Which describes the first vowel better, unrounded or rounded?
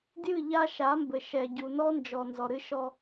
unrounded